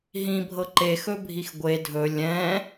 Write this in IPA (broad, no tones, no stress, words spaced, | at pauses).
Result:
ɦĩbʱɤ ǃexɵbʱix ɡʷe dʱɵ lʲɛ̃